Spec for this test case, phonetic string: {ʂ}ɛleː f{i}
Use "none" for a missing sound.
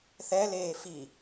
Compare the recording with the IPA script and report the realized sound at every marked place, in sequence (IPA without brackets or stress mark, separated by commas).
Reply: θ, i